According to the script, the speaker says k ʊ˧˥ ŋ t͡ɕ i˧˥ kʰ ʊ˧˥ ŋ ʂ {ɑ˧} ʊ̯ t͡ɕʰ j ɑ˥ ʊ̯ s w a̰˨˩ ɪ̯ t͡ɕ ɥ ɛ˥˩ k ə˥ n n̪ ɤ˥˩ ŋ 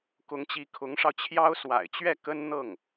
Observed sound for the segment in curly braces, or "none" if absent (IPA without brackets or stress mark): ɑ˧